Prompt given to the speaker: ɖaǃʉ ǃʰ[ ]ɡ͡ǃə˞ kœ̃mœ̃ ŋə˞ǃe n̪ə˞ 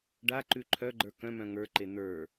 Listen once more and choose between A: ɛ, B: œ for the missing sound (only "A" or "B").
B